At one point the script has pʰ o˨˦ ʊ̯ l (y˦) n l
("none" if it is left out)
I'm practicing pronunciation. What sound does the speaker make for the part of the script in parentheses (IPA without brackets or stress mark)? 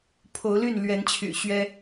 y˥˨